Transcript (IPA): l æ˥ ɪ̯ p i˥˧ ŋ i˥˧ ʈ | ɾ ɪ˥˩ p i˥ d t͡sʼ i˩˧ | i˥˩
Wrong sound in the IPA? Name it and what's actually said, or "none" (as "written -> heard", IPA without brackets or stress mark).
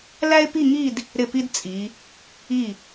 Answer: ʈ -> d